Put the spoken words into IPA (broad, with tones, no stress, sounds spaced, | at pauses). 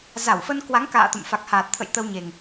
z a˧˩ w f ə˧ n k w a˨˦ ŋ k a̰ː˧˨ t̪ ə̰˧˨ m f a˨˩ k̚ h aː˨˩ t̚ t̪ʰ ə̰˧˨ j t̪ ə˧ w ɲ e˨˩ ŋ